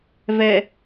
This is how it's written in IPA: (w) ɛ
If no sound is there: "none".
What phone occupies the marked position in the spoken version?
v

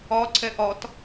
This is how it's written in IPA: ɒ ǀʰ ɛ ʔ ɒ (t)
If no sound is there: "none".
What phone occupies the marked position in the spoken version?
t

